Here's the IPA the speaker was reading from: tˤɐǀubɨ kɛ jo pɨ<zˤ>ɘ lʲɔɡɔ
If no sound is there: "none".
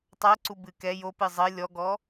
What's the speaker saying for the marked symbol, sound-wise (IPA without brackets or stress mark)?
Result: zˤ